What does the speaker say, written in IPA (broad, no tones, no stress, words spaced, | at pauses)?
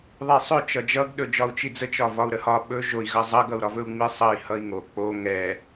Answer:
ðˤisˤɵ t͡ʃʌd͡ʒʌɡ ɗɵd͡ʒɒu̯t͡ʃid͡zə t͡ʃɒvɒu̯ɾəhɒ ɓɵ ʒoi̯ ɣʌzˤʌɡ ʌu̯ɾɒvɵu̯ŋ͡mi sˤʌi̯ hʌi̯ŋo k͡po ŋɛ